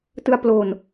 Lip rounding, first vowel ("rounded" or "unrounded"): unrounded